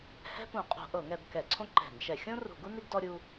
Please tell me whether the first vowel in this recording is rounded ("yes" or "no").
no